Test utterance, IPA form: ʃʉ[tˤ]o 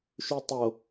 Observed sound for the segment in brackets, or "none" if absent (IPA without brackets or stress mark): tˤ